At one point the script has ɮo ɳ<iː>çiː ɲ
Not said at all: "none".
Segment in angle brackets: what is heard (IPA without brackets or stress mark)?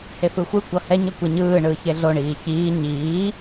iː